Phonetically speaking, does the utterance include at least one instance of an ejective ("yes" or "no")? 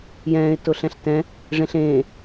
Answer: no